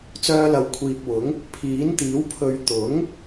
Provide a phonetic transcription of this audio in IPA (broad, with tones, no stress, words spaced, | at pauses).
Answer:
t͡sœː˧lɐ˨wkʷʰiː˨p̚wʊ˨˥ŋ | pʰiː˨˥nt̪iː˨˥w pʰɵ˨ɥt̪ʊ˨˥ŋ